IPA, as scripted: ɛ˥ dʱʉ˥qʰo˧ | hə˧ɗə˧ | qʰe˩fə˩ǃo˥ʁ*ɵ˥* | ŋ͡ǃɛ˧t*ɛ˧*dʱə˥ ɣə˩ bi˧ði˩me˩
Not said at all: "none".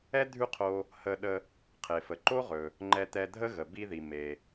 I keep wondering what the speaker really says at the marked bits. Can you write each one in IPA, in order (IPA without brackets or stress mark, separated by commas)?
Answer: ɵ˩, ɛ˧